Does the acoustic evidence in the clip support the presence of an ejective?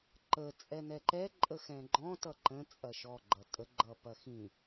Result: yes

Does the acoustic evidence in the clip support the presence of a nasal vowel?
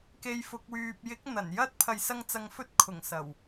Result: no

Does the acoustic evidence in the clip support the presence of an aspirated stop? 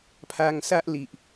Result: yes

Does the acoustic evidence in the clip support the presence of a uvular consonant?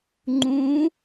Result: no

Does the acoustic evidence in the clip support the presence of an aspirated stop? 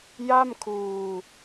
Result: yes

